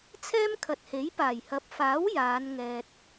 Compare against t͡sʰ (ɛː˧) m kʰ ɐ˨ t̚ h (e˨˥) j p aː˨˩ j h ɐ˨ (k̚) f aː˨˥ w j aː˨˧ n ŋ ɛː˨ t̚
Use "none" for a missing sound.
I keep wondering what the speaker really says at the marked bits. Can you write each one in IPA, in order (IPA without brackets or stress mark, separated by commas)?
ɛː˥, e˨˥, p̚